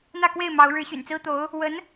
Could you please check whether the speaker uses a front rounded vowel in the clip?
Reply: yes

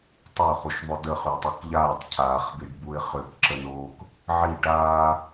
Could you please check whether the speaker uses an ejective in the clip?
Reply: no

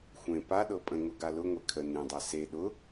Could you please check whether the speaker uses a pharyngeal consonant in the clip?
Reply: no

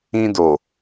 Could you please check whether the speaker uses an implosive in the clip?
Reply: no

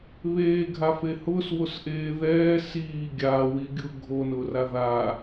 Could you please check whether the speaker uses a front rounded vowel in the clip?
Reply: no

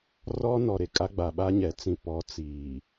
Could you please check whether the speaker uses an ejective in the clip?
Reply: yes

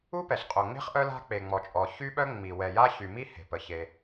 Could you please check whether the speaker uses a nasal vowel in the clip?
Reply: no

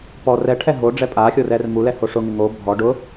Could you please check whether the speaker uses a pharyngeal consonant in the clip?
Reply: no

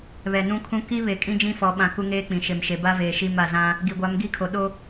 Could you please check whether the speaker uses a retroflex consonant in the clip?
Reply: no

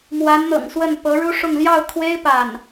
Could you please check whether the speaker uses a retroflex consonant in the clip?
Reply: yes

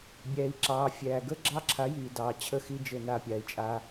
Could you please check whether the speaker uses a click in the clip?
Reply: yes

